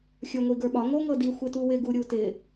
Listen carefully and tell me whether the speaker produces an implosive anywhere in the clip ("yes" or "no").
yes